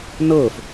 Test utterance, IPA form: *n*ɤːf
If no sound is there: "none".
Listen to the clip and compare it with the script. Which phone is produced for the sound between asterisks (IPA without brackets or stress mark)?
n